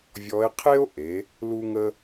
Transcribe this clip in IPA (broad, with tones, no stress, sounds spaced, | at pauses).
vʲ ɔ˧˥ e̯ qʰ e˥ o̯ ʔ e˩˧ | l u˧ ŋ ə˧